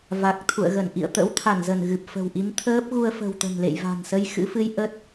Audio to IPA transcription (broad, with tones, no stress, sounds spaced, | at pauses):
v a˨˩ k̚ t̪ʰ ṵ˧˨ ə̯ ɣ ə˧˩ n ʔ ḭ˧˨ ə̯ t̪ ə̰˧˥ w t̪ʰ a˧˩ n z ə˧˩ n ɣ ɨ˨˩ p̚ f ə̤˨˩ w ʔ i˨˦ m t̪ʰ əː˦˥ p̚ ɣ u˧ ə̯ f ə̤˨˩ w t̪ ə̤˨˩ n l ḛ˧˨ j v a̤˨˩ n s ə˧ j x ɨ̰˧˥ f ɨ˧ j ʔ ə˦˥ t̚